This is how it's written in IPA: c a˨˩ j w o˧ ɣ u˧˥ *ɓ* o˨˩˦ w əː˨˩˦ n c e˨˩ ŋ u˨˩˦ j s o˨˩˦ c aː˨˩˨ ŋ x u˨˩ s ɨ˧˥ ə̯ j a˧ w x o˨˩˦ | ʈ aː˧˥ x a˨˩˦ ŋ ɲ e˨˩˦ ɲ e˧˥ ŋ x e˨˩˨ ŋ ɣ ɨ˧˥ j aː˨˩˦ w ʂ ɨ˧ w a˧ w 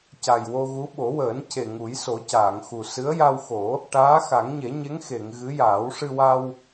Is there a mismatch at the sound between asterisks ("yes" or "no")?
no